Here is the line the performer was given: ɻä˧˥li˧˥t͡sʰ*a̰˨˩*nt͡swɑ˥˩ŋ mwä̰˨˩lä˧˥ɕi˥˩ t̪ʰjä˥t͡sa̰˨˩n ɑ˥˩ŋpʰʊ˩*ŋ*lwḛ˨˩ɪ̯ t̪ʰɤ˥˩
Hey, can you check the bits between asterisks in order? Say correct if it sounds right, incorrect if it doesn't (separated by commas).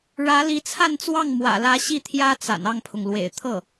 incorrect, correct